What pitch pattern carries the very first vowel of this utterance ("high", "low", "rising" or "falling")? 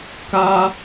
high